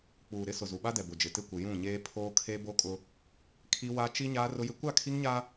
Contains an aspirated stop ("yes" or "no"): yes